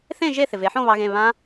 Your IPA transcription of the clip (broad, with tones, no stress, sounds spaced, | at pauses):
θ ẽ˥˧ ʒ e˥˧ θ ɪ˨ v e˨˦ ħ õ˥˧ β ɑ˦˥ ɣ ẽ˧˥˧ β ã˦˥